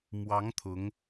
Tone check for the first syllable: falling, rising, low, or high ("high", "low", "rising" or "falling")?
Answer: rising